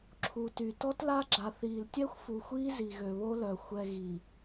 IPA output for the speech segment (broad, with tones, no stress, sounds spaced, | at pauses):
ǁʰ u˨ t y˨ t ɔ˦ t l a˦ ɡ͡ǁ a˨ θ iː˨ l tʲ ɛ˦ xʷ f u˨ xʷ iː˦ z i˨ ɣ ø˨ β o˦ l œ˨ xʷ ɛ˨ ɣ i˨